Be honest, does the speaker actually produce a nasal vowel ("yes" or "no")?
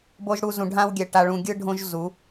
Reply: yes